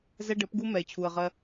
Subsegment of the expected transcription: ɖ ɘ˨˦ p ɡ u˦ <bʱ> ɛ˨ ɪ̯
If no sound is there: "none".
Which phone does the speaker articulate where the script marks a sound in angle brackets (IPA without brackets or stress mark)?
m